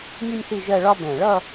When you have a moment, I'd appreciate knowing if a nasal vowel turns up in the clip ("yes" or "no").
yes